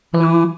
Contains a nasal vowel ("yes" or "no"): yes